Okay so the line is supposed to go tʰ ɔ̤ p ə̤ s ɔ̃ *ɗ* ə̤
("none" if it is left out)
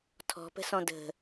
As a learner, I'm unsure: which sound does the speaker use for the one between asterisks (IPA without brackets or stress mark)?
d